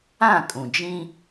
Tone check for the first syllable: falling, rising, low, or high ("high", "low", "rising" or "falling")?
falling